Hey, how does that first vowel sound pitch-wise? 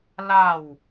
falling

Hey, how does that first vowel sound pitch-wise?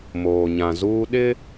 low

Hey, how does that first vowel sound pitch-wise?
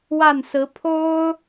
falling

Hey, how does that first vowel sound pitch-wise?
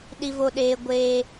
high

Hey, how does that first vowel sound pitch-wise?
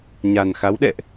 low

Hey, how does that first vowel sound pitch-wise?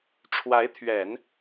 rising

